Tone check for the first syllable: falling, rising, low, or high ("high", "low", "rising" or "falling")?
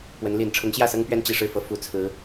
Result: rising